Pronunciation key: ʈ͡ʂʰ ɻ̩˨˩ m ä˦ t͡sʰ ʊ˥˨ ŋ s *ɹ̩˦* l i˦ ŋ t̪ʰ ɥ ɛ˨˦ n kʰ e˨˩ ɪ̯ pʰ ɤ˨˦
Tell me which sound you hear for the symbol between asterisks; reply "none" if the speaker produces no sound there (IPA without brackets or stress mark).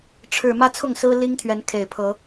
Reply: ɹ̩˦